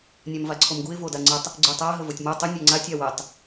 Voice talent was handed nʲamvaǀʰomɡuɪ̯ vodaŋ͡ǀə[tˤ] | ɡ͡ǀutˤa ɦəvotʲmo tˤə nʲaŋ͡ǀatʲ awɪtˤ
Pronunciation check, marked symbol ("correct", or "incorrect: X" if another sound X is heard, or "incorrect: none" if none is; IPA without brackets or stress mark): correct